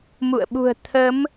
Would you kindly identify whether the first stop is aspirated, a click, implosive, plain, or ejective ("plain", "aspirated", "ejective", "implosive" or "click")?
implosive